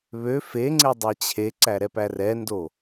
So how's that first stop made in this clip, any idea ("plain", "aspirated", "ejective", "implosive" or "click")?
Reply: click